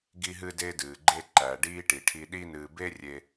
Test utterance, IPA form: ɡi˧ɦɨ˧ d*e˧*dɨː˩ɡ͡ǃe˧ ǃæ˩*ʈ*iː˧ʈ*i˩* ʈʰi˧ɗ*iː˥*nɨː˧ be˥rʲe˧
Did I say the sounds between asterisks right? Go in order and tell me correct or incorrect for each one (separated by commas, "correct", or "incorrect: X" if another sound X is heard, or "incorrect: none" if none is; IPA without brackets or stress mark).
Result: correct, incorrect: ɖ, correct, incorrect: i˥